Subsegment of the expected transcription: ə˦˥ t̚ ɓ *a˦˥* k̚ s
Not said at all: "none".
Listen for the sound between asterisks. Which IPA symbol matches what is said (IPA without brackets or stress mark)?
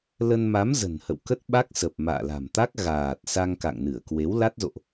a˦˥